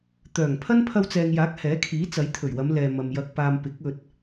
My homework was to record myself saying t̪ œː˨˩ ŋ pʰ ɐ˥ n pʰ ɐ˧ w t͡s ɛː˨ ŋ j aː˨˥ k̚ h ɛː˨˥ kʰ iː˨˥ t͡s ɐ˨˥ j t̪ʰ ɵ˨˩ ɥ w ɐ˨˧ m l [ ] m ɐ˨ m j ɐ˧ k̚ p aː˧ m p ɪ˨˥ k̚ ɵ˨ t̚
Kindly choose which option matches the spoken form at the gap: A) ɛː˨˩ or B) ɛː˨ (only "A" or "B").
B